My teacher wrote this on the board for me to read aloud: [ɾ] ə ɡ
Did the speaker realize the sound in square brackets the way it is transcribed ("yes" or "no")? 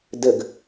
no